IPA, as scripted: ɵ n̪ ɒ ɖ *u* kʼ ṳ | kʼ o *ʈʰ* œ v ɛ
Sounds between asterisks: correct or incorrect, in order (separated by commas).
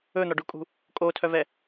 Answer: correct, incorrect